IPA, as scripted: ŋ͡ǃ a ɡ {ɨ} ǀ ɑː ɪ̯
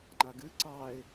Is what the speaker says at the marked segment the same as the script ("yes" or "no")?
yes